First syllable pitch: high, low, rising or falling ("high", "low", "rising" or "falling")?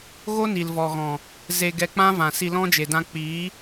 high